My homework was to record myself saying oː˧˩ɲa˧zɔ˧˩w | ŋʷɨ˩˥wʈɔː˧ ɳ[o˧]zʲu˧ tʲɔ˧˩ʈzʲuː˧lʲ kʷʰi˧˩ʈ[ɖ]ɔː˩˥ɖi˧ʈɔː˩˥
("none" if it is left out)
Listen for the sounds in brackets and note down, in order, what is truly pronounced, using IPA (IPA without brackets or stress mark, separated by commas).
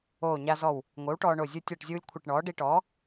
o˧˩, ɳ